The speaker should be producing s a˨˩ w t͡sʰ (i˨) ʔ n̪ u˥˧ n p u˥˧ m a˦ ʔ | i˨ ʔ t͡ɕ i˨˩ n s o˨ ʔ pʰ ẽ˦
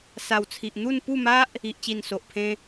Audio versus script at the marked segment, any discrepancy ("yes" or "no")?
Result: no